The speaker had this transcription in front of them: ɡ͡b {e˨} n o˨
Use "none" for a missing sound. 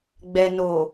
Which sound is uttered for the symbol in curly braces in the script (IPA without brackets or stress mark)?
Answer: ɛ˨